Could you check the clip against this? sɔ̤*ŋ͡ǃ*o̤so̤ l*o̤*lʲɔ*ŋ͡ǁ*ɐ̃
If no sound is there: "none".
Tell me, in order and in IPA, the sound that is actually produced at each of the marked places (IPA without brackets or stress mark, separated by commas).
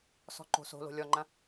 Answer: ǃ, o̤, ŋ͡ǃ